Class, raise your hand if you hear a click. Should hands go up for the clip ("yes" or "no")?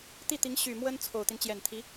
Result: no